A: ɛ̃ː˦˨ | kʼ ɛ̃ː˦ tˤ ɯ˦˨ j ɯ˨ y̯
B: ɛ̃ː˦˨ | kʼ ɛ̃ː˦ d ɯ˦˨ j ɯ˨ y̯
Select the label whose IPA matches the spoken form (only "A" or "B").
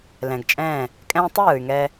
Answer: A